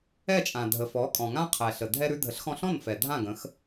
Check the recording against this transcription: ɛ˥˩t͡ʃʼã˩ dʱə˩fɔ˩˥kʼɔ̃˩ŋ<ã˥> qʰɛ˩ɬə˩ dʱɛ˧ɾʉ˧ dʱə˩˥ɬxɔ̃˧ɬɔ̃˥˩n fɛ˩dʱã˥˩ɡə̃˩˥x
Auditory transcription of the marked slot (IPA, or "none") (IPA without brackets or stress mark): ã˥